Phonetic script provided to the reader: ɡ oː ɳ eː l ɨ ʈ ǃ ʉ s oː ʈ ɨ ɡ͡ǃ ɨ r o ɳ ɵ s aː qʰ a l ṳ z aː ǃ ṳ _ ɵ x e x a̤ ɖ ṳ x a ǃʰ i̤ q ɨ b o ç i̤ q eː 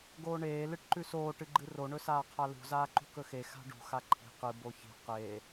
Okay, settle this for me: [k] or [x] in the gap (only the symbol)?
k